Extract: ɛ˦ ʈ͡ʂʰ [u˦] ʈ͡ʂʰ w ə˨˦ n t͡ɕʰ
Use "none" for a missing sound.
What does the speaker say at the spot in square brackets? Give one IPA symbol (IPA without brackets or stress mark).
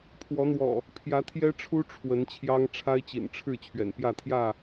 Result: u˦